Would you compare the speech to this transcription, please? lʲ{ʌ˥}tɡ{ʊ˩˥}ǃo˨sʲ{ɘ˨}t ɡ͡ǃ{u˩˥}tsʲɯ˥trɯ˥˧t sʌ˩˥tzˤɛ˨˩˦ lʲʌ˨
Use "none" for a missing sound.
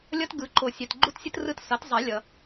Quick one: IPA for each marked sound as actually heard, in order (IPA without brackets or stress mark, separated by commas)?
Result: ʌ˥, ɯ˩˥, ɛ˨, u˥˧